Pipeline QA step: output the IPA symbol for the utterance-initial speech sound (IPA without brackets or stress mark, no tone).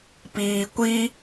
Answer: p